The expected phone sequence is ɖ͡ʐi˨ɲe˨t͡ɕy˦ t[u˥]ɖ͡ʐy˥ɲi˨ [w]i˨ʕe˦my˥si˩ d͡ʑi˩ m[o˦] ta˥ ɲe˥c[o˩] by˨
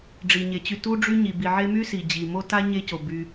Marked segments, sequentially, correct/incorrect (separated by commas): correct, incorrect, incorrect, correct